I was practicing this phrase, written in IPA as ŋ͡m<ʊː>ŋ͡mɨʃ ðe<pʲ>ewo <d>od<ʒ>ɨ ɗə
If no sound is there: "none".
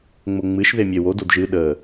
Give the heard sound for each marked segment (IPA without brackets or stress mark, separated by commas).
ʊ, mʲ, d, ʒ